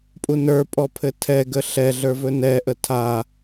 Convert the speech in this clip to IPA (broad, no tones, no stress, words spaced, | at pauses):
pʼunə˞pʼɔ pʰɘtʰɛɡə ɬɛɮə˞ vɵnɛʔə tʰa